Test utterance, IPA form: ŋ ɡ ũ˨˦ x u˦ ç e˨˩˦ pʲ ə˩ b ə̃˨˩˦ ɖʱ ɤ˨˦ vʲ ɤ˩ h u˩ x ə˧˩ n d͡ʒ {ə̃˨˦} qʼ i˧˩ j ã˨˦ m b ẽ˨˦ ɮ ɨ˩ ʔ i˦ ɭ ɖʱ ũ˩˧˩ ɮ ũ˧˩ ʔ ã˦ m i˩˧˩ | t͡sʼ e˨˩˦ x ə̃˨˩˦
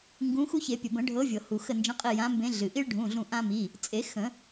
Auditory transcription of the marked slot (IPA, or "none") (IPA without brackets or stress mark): ə̃˨˦